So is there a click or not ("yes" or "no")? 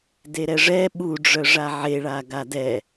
no